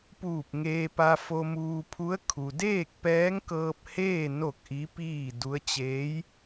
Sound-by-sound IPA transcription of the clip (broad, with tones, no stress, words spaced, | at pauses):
puː˧˩p̚ŋeː˧pa˧ fo˧muː˧pʰu˧˥ə̯ kʰu˩deː˥˨k̚ pɛː˧˥ŋkɤː˧p̚heː˥˨ no˥˨k̚ʔi˧˥piː˥˨ du˧˥ə̯t͡ɕeː˧˥j